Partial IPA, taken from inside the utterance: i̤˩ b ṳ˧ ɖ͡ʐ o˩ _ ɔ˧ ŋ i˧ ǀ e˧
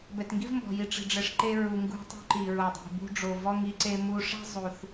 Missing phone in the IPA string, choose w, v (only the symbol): v